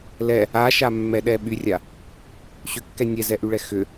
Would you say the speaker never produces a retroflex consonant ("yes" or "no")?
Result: no